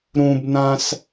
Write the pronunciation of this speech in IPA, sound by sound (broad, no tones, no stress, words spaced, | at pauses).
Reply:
ɾũbnãs